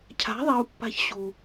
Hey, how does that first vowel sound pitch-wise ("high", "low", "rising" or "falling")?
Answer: rising